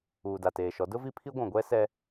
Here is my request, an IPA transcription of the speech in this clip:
uː˨da˨teː˨ʃɔ˨˦ dʊ˦vi˦pʰi˦ ɡʷũ˨ɡʷɛ˦ sɛ˦

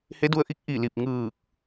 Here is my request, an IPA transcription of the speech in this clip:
he˧˥du˧ə̯ʔi˧˥k̚ ʔi˧˩li˧˩p̚ ŋɯː˧˩k̚

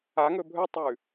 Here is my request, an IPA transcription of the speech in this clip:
aŋɵ bʱɵtˤʉ

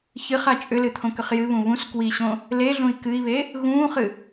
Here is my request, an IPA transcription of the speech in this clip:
çɨχa t͡ʃʼʏlɨ t̪ʰõkʏχjɨβũ βũs kwiɕõ | leɮũi̯ kɨi̯βe | ɣũːχɨ

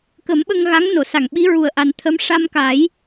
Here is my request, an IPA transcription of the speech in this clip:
kə˨˩˦mɓə˧ŋɣa˧˥ŋ no˨˩˨sa˨˩˨ŋɓi˧˥ ɹu˨˩ə̯ʔa˨˩nt̪ʰə˧˥m ʂa˧mka˨˩˦j

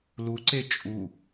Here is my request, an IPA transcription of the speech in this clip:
luǀe t͡ʃʼu

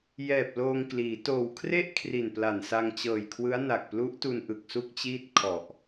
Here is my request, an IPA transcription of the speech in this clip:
jɛː˨˩p̚ loː˧ŋkliː˩˦ toː˨˩wkʰre˥˩ʔ kʰri˨˩npla˨˩nsa˧ŋ t͡ɕɤː˨˩jkʰwɯ˦˥a̯ na˨˩k̚plu˦˥ʔtu˧n ʔɯ˨˩k̚su˥˩k̚t͡ɕiː˥˩t̚ kʰɔ˨˩ʔ

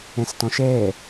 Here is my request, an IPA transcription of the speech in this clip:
ɛ̃stɔ̃ʃɛː

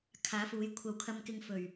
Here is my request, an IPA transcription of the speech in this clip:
kʰaː˨˥fuː˨˥jkʷʰɐ˧w kʰɐ˧mkɪ˧ŋ fɵ˨˩ɥ

